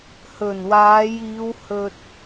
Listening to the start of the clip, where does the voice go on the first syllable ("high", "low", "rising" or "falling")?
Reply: low